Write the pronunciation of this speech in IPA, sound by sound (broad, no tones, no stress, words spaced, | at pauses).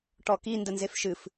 ʈɔki ndənzefʃɨf